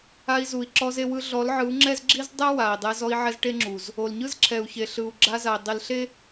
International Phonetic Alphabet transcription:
a˧i̯zu˨i̯ǁɔ˧z e˧wɯ˧ ɮɔ˨˦lʕɯ˨˦u̯ŋ͡ǁɛ˦zɡ͡ǁi˦z dˤɛ˦ wa˨i̯dˤe˧z ɔ˦i̯ʕɛ˦zʈe˦ŋ͡ǁu˨z | o˨l ɲɯ˦zǁʰɛ˨u̯çe˨ ɬɯ˨u̯ ɡ͡ǁa˧za˨i̯ dˤi˨lɬe˦

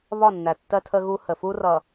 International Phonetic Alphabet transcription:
βɒ˦˨nːæ˨tːɜ˦ tʰə˦ɣu˦ hə˨fu˦rʌ˨

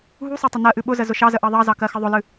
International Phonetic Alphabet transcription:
ɦusˤɛ tˤənɜʔɨ ɓʊzə zʊʃɑzə ʔɑðˤɑzɑ kɜxəðˤʊlɨ

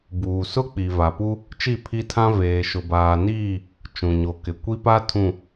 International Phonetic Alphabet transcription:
buː˨sʊ˦ k͡pi˨va˨pu˦ | t͡ʃi˦˨pʰi˦tʰã˦ veː˨ʃʊ˨baː˨niː˦˨ | t͡ʃũ˨ɲo˨kɪ˨ kʷi˦pa˦ tʰũ˨

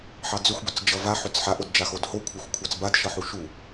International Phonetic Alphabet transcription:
ħɑd͡zʏxʷ bʏt͡sd͡ʒʌva ħʏt͡sħa ʔodd͡ʒaxodho kʷʰɑxʷkʷʰɑt͡sbad ʃʌħuʃu

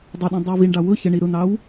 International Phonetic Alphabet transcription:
dˤɪ ɗĩdˤəwviɳɖɑ wʊ çəɳi ɾʊn̪ɑw

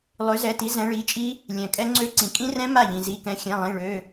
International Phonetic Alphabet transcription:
lˠø˨˦zɛ˩˧˩ti˨˦ zɛ̃˨˦ɭi˩˧˩t͡ʃʼi˦˥ | lʲɛ̃˩kʼɛ˦˥ ŋ͡ǀø˦˥ ǀĩ˩kʼĩ˦˥rɛ̃˦˥ ma˥˩ʎĩ˩zi˩˧˩kɛ̃˨˦ xʲɛ̃˩˧˩lˠĩ˩˧˩ ɭø˩˧˩

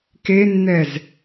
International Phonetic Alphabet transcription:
kenːɛz

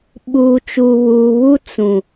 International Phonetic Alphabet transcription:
ɓuː˨t͡ʃuː˨βuː˨βu˦ t͡sũ˨

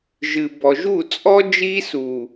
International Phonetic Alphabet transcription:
ʒɨ˨ bɔ˨ʒu˦˨t͡sʼɔ˦ d͡ʒiː˦suː˨

